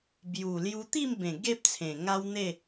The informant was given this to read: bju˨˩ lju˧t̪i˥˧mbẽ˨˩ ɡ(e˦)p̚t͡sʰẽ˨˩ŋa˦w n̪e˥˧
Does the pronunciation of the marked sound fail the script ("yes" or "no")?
no